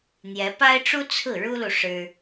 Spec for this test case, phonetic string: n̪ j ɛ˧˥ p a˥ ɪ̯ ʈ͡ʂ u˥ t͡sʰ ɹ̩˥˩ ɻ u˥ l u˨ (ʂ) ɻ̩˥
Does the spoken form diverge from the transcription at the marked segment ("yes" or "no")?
no